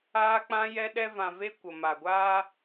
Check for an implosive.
present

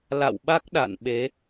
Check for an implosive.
present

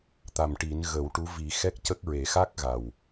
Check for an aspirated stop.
absent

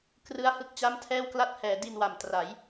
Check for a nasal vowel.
absent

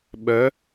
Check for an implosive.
present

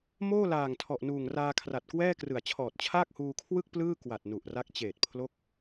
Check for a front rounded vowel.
absent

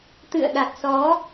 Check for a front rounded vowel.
absent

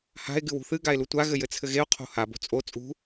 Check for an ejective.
present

